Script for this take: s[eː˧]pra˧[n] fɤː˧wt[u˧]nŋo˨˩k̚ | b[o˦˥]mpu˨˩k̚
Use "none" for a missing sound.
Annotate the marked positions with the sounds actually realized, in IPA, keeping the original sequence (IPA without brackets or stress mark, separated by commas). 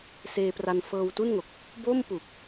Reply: eː˧, n, u˥˩, o˥˩